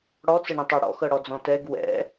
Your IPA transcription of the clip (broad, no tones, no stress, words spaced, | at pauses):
ɽɔt͡səɳə̃tˤɤ ɽɔ̰xɤɽɔd͡zɔ̃ tɛɡ wɛ̰